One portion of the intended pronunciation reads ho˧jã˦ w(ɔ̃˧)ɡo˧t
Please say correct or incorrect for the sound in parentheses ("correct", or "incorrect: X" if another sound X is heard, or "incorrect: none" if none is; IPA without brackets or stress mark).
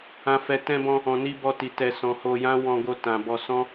correct